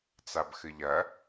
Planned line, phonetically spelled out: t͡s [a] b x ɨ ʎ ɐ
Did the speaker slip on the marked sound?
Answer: no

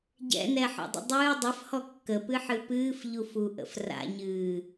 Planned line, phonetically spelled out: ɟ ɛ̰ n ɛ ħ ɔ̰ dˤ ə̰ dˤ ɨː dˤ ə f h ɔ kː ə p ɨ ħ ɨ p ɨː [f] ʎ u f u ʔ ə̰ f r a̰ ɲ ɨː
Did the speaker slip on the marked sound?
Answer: no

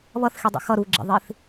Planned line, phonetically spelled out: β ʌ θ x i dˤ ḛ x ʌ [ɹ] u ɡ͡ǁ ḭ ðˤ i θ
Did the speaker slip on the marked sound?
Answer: yes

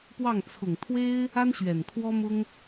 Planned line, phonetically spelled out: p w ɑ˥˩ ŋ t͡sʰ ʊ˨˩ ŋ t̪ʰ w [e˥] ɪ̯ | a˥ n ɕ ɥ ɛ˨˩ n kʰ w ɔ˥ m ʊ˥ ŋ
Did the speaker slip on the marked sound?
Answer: no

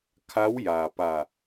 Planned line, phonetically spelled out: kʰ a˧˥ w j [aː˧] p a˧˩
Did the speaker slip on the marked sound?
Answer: yes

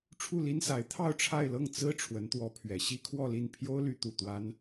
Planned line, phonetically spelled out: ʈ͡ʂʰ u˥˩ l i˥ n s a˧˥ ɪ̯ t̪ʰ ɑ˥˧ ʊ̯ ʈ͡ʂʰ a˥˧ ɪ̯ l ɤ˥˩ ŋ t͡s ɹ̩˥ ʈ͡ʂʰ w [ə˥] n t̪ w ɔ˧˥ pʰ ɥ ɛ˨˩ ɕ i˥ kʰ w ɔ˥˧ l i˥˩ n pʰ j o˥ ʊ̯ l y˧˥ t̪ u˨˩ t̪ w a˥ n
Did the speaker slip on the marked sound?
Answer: yes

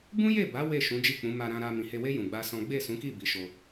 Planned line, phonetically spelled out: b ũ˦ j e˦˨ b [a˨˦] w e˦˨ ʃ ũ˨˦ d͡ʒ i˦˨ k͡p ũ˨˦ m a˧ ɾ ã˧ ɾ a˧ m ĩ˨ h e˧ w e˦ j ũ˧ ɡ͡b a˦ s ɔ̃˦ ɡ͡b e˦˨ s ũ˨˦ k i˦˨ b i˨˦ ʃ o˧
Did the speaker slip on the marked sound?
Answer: no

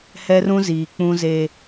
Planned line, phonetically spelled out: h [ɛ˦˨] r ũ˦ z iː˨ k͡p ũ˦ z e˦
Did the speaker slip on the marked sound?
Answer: yes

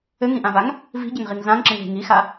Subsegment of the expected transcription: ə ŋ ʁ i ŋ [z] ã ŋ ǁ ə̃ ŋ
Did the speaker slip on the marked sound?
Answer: no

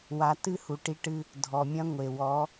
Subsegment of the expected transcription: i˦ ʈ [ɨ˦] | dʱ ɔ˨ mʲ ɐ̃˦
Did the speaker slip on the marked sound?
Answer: no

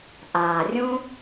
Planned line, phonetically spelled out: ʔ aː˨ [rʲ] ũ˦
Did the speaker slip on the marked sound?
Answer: no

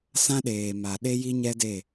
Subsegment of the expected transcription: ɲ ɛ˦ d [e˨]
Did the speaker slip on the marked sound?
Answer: yes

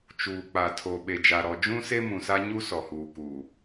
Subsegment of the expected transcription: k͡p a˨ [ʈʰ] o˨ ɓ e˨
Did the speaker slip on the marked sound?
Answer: yes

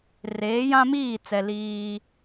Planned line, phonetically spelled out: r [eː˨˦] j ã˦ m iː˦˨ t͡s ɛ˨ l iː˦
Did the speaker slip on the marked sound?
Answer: no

